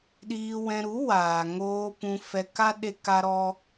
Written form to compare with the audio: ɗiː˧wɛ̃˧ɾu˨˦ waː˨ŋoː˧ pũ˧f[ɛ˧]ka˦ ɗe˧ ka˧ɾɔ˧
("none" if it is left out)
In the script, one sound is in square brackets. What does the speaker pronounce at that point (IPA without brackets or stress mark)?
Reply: ɛ˧